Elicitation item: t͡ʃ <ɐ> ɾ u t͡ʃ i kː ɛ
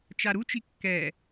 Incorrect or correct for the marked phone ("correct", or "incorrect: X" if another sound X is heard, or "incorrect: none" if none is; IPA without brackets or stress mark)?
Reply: incorrect: a